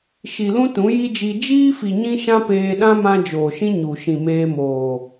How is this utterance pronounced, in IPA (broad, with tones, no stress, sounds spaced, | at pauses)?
ʃ i˨ l ũ˦ t ũ˨˦ j i˦ d͡ʒ i˧ d͡ʒ iː˦ f i˨ ɲ ĩ˦ ʃ ã˦ p eː˧ ɗ ã˦ m ã˦ d͡ʒ oː˨ ʃ ĩ˦ ɲ u˨ ʃ ĩ˨ m eː˧ m oː˨